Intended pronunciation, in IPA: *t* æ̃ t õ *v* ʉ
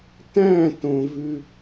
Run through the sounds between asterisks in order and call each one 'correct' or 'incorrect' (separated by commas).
correct, correct